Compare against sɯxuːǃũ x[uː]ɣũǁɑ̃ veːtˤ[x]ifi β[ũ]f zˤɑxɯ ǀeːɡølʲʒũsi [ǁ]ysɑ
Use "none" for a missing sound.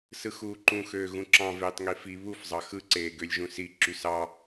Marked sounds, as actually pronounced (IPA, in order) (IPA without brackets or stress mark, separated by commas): øː, ŋ, u, ǁ